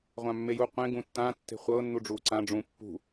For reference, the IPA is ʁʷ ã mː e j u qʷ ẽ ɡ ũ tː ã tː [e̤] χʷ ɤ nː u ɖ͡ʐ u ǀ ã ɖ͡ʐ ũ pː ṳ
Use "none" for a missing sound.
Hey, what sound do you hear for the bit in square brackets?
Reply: e̤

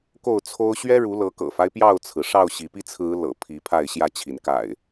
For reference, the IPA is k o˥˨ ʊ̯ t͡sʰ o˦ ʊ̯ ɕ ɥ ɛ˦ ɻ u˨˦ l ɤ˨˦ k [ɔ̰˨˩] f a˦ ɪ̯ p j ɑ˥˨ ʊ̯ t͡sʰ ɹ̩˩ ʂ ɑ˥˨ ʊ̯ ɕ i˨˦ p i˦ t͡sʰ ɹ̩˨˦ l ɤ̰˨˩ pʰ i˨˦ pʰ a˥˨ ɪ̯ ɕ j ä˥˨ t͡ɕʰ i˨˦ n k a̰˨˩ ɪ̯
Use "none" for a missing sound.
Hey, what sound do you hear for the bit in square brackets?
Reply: ɤ̰˨˩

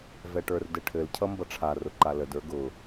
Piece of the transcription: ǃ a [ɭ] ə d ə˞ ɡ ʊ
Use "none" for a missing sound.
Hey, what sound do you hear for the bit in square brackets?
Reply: l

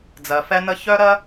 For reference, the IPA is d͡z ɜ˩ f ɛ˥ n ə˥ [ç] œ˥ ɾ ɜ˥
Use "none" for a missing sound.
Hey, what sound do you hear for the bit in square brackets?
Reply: ç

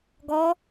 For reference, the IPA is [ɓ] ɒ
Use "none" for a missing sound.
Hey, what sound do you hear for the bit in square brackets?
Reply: ɡ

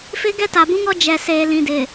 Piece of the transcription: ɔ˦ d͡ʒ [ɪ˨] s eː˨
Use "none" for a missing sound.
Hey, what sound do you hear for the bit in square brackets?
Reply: ɛ˨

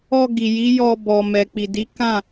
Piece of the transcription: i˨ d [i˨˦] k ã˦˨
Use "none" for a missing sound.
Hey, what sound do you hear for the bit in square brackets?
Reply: i˨˦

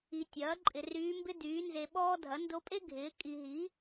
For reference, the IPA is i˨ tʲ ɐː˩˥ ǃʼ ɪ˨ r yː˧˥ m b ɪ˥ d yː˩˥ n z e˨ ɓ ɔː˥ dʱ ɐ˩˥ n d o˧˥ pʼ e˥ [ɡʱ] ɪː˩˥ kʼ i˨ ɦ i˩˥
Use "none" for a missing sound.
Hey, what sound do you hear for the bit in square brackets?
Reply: ɡʱ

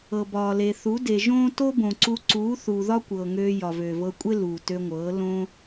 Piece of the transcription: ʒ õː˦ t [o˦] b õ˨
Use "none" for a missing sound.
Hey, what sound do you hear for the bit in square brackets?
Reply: o˦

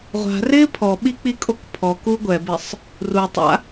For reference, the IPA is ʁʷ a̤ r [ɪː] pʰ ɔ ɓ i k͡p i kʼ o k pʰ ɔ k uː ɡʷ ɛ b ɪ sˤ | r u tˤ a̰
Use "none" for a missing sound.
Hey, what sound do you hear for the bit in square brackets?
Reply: ɪː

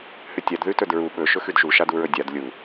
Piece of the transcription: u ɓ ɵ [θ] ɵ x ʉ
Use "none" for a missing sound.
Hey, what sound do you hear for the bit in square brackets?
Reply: ʃ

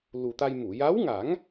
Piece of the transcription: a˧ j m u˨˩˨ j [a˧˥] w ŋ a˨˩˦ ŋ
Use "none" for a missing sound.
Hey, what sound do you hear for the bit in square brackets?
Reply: a˧˥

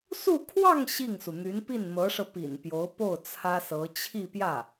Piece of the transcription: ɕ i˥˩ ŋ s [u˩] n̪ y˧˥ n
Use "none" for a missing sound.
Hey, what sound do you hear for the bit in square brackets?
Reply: u˩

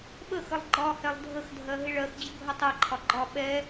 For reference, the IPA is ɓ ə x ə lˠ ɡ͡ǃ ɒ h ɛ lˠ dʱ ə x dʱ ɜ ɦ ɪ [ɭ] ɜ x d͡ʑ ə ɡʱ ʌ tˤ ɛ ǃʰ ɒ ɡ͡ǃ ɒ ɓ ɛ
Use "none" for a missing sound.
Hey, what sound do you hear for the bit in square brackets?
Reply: ɭ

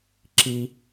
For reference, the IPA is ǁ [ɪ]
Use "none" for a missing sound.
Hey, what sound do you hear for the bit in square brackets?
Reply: i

